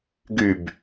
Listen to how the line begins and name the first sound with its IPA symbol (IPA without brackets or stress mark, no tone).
ɡ